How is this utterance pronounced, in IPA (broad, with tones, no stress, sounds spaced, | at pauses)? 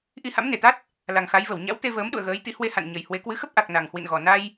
ʔ i˧ h a̰˧˥ m n e˧˩ t̪ a˦˥ t̚ | l a˨˩ ŋ x a˨˦ j v ə˧˩ w ɲ a̰˧˥ w t̪ e˧ v əː˨˦ m ɗ ṵ˧˨ ə̯ ɣ əː˨˦ j t̪ ḭ˧˥ h w e˧ h a̰˧˨ n ɲ ə˨˩ j h w e˨˦ k w ɨ˨˦ x ə˦˥ p̚ ʔ a˨˩ k̚ n a˨˩ ŋ h w ḭ˧˨ n ɣ ɔ˨˩ n a˧ j